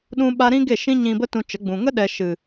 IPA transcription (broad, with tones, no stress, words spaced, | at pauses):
ɗũ˦ɓa˦ ɾĩ˦ɡe˦˨ ʃĩ˦ɲĩ˧bə˦ tũ˧ t͡ʃə˨˦ɡ͡bũ˨ ŋə˦ɗɛ˨ ʃɨ˨